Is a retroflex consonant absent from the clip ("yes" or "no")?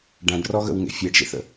no